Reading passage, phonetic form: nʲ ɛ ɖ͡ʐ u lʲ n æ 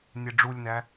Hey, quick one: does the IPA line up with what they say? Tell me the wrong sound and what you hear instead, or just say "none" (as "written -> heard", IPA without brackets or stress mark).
none